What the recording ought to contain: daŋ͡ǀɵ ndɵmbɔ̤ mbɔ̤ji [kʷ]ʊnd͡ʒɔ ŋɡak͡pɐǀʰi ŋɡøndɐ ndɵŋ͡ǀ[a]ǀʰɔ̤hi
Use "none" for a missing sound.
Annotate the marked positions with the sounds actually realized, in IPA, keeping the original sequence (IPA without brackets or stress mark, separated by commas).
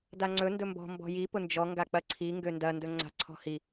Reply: p, a̤